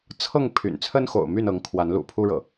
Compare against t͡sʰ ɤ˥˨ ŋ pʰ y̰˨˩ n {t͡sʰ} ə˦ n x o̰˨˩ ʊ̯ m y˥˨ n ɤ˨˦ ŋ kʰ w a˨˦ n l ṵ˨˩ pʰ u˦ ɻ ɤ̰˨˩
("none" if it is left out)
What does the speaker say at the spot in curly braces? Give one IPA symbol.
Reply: t͡sʰ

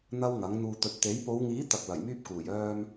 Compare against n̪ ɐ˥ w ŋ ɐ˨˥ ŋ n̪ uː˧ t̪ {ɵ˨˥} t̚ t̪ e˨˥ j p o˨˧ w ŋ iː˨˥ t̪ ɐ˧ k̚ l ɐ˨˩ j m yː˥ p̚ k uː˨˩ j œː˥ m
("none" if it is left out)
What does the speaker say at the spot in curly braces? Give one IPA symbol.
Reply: ɵ˨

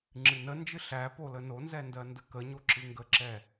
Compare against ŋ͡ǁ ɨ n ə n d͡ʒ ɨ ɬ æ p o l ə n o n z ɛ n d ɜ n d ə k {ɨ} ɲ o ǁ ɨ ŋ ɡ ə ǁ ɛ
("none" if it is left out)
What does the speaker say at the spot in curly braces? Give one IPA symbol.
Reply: ə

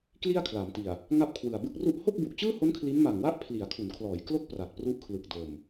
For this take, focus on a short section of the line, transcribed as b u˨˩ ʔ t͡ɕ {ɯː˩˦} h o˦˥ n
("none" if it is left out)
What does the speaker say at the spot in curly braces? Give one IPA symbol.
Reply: ɯː˥˩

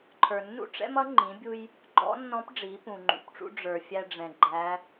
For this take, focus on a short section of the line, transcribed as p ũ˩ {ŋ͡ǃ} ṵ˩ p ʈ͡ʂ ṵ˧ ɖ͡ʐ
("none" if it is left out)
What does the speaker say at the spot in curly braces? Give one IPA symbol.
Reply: ŋ͡ǃ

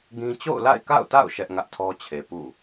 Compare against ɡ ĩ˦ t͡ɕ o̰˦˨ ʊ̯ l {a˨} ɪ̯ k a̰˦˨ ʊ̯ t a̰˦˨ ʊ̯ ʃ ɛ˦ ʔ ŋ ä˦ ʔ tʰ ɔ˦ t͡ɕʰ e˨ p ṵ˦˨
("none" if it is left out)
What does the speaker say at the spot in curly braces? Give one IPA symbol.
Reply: a̰˦˨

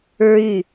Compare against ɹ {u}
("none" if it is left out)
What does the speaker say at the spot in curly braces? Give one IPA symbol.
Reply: y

